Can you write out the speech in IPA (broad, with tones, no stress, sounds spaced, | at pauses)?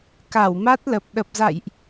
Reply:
k a˧˩ w m a˦˥ t̚ l ə˨˩ p̚ ɗ ə˨˩ p̚ z a̰˧˨ j ʔ